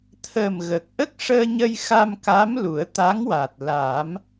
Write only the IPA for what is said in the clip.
t̪ʰ əː˨˩ m ɣ ə˨˩ k̚ ʔ ə˦˥ k̚ ʂ əː˧ ɲ ə˧ j x a˧ m k a˧˥ m l u˨˩˦ ə̯ t̪ a˧˥ ŋ w a˨˩ t̚ l a˨˩˦ m

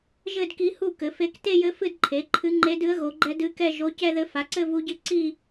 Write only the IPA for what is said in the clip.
ʒ ɘ˥˧ d k i˧˥ h u˥˧ k ɘ˩˥ f e˧˥ k t e˥˧ j ɘ˧˥ f ɨ˥˧ d ǃʰ e˩˥ ǃʰ ɨ˧˥ ŋ͡ǃ e˧˥ d ɨ˧˥ ə̯ ɣ o˩˥ ɡ͡ǃ ɛ˧˥ d ɨ˧˥ k ɛ˥˧ ʒ o˧˥ c ɛ˥˧ ð ɘ˧˥ f a˩˥ ǀ ɘ˥˧ v u˧˥ ɟ ɨ˧˥ ǀ i˥˧

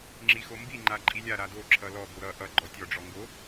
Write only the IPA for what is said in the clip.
ŋ͡ǁ i x o m b i ŋ͡ǃ a ǃʼ i lʲ a ɾ a d o ǁʰ ʌ l ɔ b o ɾ ʌ ʔ ʌ ɡ͡ǃ ɔ tʲ ɔ ɖ͡ʐ ɔ ŋ ɡ o

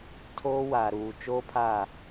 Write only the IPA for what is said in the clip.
tʰ oː˦ w aː˨ ɾ uː˨ t͡ʃ oː˦ pʰ a˦˨

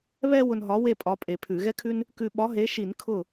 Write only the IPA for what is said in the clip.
β ɛ˧ w ʊ˧ n ɦ ɒ˨˥ w e˥˨ pʼ ɒ˨˥ pʼ e˧˩˧ pʰ ʉ˧˩˧ ɣ ɛ˥ kʰ ʉ˥ n | k ʉ˧ ɓ ɒ˨˥ ɦ e˨˥ ʃ i˧˩˧ n kʰ ʊ˥˨

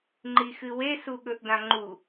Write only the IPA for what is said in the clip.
ŋ͡ǃ i x ɨ w e s u ɠ ɵ ʔ d ã ŋ͡ǃ u

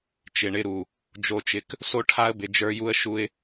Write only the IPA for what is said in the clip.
t͡ʃ ɪ˨ ɳ ɪ˧ ɾ u˨ | d͡ʒ o˨ t͡ʃ ɪ˨ k | s o˧ ʈʰ a˧ ə̯ b ɪ˨ d͡ʒ ə˞˧ j u˧ ə̯ ʃ u˧ ɪ̯

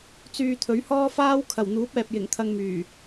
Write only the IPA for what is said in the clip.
t͡s yː˧ t̪ʰ ɵ˨˥ ɥ h ɔː˥ f aː˥ w kʰ ɐ˨˩ w n̪ uː˨˥ p̚ ɛː˨ p̚ j ɪ˨˩ ŋ t̪ʰ ɐ˧ ŋ m yː˨˩

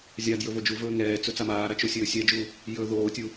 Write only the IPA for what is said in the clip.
zʲ a d j ɵ v o d͡ʒ u v ɵː ŋ ɛː t͡s ɵ t͡s a m aː ɾ a t͡ʃ o sʲ ɵː sʲ ɛ d͡ʒ u | j ɵː ð oː tʲ u

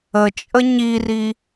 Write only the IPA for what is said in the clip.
ə t͡ʃʼ ə ɲ i r i

